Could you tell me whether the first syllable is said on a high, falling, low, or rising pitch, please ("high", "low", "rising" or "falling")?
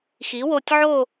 rising